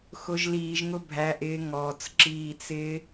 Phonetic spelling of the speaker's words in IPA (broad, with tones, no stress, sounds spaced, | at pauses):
x ʊ˨ ʒ l iː˨ ʒ ŋ ʊ˧ bʱ æ˨ ʔ ɪː˨ ŋ ɔː˨ t͡s ǁ iː˧ t͡s ɪː˦